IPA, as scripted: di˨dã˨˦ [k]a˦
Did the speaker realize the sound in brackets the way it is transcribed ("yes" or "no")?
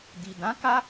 yes